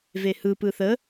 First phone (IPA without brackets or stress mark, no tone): v